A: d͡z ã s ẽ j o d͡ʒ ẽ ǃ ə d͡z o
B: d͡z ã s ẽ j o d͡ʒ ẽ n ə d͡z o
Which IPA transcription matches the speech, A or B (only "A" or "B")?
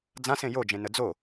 B